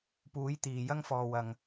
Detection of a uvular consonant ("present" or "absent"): absent